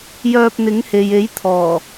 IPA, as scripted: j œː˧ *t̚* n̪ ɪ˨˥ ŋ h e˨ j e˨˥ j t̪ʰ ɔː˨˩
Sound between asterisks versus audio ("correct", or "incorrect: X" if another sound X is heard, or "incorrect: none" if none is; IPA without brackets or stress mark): incorrect: p̚